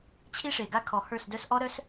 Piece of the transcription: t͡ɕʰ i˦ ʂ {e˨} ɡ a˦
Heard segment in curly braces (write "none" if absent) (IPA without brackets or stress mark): e˨